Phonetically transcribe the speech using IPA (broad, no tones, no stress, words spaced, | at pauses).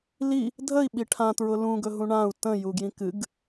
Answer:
li | dʱəi̯ɓi ʈʰãtɹʊ lũɡɵɦũ ɳãu̯ tə̃juɡjĩ kɨɡ